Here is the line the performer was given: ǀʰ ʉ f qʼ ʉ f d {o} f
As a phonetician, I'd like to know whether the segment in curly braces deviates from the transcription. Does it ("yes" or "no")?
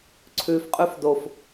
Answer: no